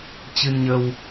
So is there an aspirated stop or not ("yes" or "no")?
no